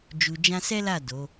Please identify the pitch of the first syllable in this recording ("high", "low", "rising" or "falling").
low